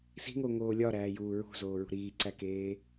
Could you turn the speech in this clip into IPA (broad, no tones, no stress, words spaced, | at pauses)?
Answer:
si̤ŋoŋoː lʲɒɾæːjuː ɹṳzoːɹṳ ɾiːǀækeː